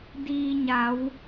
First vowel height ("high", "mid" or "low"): high